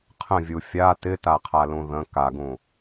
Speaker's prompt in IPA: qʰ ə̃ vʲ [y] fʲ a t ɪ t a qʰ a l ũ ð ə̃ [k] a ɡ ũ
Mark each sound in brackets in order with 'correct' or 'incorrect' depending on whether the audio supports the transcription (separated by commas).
incorrect, correct